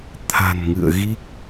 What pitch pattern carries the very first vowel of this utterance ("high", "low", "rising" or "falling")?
low